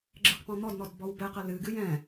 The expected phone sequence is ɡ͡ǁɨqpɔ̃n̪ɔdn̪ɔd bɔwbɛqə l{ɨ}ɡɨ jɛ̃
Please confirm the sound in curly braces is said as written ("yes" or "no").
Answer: yes